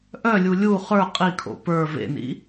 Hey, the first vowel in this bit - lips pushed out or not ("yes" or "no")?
yes